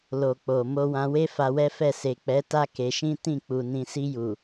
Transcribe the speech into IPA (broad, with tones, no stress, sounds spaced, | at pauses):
l o˨ k͡p o˨ m o˧ w ã˧ w e˦ f a˧ w ɛ˦ f ɛ˦˨ s e˨ k͡p ɛ˨˦ t a˧ k e˧ ʃ ĩ˦ t ĩ˦˨ k͡p u˨ n ĩ˨ s i˧ j u˨